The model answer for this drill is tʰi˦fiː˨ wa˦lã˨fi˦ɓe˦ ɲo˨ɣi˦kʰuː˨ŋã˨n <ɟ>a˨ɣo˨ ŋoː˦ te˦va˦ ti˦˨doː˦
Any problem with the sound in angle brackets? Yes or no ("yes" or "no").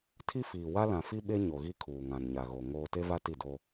yes